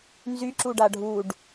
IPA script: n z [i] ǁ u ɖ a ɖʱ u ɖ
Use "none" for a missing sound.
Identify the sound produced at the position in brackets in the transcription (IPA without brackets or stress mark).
y